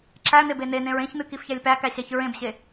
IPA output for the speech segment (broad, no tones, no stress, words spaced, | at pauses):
ǁæ n̪ebenenẽɹ ẽçn̪ɨ kifçælʲpækæ ɕæçɹẽbɕe